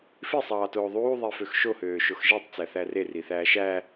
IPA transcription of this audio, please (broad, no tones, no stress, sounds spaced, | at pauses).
f i sˤ ɑː t oː ðˤ uː ðˤ i f ø x ʃ o h øː ʃ o x ʒ e tˤ t͡s æ θ æ r e r i θ æː ʃ æ